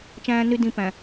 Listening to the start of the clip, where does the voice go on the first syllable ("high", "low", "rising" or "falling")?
high